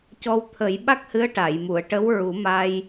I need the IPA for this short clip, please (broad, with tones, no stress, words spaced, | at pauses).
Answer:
cɔ˧wt̪ʰə˨˩˦jɓa˦˥k̚hɨ˧˥ə̯ ʈa˨˩˨jmu˨˩˨ə̯ ʈə˧˥wɹu˨˩˦ma˧j